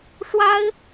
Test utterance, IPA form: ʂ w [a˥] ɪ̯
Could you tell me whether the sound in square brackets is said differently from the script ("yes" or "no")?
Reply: no